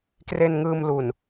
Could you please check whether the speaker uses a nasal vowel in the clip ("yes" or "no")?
no